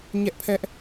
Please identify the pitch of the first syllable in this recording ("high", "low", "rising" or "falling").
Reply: high